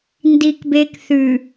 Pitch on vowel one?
high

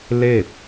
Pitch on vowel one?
falling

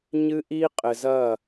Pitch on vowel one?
high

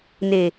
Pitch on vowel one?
low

